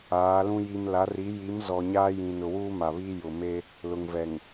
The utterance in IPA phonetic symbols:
aː˨˦lũ˦ ji˨mla˨˦ri˨˦ ji˨˦m zɔ˨ ɲaː˦ jĩ˨nʊ˨ wuː˦ma˨βiː˦ jʊ˨me˦ | lʊ˨ŋvɛ˨ŋ

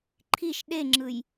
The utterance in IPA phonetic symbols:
ǃʰiʃ ɗeŋ͡ǁɯj

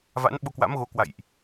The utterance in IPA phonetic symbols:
va̰˧˥nɓo˧kwa̰˧˥mɣo˨˦ kwa̰˧˨jʔ

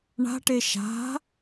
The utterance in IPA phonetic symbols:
ɳa̤ʈe ʃa̤

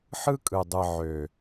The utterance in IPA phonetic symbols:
ħɯ˦ kʼɯ˨dˤɯ˨ ʕø˨

